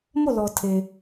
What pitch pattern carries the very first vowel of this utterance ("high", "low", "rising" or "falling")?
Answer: falling